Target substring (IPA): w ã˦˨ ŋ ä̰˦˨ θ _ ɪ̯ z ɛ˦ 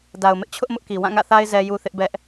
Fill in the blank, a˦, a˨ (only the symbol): a˦